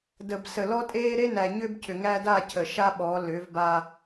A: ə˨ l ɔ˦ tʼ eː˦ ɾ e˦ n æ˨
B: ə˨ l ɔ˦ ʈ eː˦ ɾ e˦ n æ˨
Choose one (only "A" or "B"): A